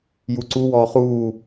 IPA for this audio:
j u ǀ u w ɔː χ uː

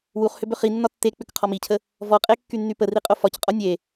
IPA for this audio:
w u χ h ʏ b ʏ χ i nː ɒ tː e k͡p ʏ k qʰ ɔ m i cʰ ə | v ɔ qʼ e kː y nː y p ə r i qʼ o f ɒ c qʼ ɔ nʲ e

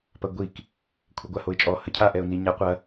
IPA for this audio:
p ɐ ɡʷ i k | kʷʰ ɛ ɡʷ a h o ɪ̯ t͡ʃʼ ɔ h ə cʰ a ʔ ɛ ʊ̯ n i ɲ a qʷ ɐ

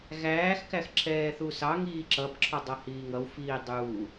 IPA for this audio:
ɣ æː x k æ x ǁʰ ɛː θ u s ɑ ŋ iː ǁ ʌ b ǁʰ ɔ dˤ ʌ h iː ŋ ʌ w f iː dˤ uː

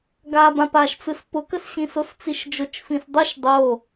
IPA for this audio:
ɡ a b ã p a ʃ t͡s ɯ s p ʊ k ə s ɕ ĩ s o s t͡s i ʃ d͡ʒ ʊ t͡ʃ f ĩ s dˤ o ʃ dˤ o

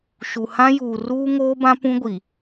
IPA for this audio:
ʃ u˨ h ã˦ j uː˨ r uː˦ ŋ oː˦ b ã˦ p ũ˦ ɡʷ i˨

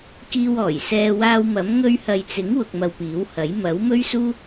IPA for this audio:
k iː˧ w ɔː˨˩ j s ɛː˧ w aː˧ w m ɐ˨˥ m ŋ ɵ˧ ɥ h ɐ˨ j t͡s ɪ˨˥ ŋ w ʊ˧ k̚ m ɐ˧ w p iː˨˥ w h ɐ˨˥ j m ɐ˨˥ w m ɵ˥ ɥ s uː˥

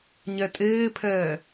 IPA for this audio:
ɲ ɛ tʼ eː pʰ ɛː

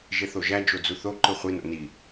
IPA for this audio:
ʒ e θ o ʒ æ d͡ʒ o d͡z u θ o ǃ ɯ χʷ i n o̰ n i

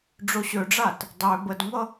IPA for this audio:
ɖ͡ʐ o ɕ ø ɖ͡ʐ a t | dˤ ø b ə d ŋʷ ʌ

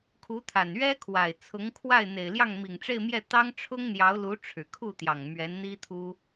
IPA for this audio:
kʰ u˧˥ t̪ʰ a˨˩ n ɥ ɛ˥ kʰ w a˨˩ ɪ̯ t͡sʰ ʊ˧˥ ŋ kʰ w a˥˩ ɪ̯ n̪ e˨˩ ɪ̯ l j ɑ˥˩ ŋ m i˨˩ ŋ ʈ͡ʂ e˥˧ ɪ̯ m j ɛ˥˩ t̪ ɑ˥ ŋ ʈ͡ʂʰ ʊ˥ ŋ n̪ j ɑ˧˥ ʊ̯ l u˧˥ ʈ͡ʂʰ ɻ̩˨˩ kʰ u˥˩ t̪ j ɑ˨˩ ŋ m ɥ ɛ˧˥ n n̪ i˥ t̪ʰ u˥

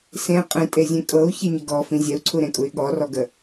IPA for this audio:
s ẽ qʼ ẽ tʼ e zʲ ẽ kʼ ɤ u̯ ç e ɲ ə ɡ ɔ f ĩ zʲ ɛ u̯ ǀʰ u ɾ ẽ kʼ u y̯ ɠ ɔ r ɔ ɡ ə

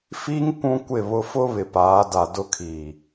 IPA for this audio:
f i˦ ŋ kʷ ũ˦ kʷ ɪ˦˨ β ʊ˦ f ʊ˦ β ɪ˨ p aː˨˦ d a˨ d ʊ˦ kʰ iː˨

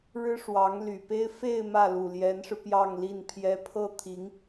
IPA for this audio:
ɻ ɻ̩˥ ʂ w ɑ˧˥ ŋ l y˨˩ p e˥ ɪ̯ f e˥˧ ɪ̯ m ä˥˩ l u˨˩ l j ɛ˧˥ n ʂ ɻ̩˧ p j ɑ˥˧ ŋ l i˥˩ n pʰ j ɛ˥ pʰ ɤ˥ t̪ʰ i˧˥ ŋ

